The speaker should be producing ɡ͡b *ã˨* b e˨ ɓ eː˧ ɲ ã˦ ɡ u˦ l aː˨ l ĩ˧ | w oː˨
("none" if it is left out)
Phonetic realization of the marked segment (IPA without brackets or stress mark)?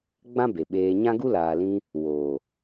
ã˦